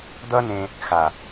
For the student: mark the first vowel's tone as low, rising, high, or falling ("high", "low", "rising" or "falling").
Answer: high